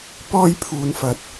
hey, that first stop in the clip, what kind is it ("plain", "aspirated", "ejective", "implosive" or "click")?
plain